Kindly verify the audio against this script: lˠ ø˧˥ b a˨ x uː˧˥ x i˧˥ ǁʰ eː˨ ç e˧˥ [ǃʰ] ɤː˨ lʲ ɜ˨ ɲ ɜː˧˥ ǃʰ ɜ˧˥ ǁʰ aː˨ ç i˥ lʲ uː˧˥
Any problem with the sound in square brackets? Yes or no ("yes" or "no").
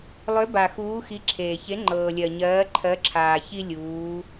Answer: yes